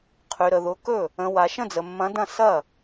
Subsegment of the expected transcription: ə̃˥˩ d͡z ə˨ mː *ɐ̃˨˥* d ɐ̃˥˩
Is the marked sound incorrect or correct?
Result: correct